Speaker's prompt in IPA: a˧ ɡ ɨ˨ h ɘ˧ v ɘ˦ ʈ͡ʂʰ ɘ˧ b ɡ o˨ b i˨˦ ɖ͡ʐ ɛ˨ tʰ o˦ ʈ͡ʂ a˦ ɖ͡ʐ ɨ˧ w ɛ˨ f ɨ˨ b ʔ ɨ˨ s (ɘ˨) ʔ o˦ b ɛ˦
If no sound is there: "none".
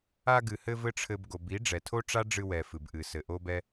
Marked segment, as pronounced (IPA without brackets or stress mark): ɘ˨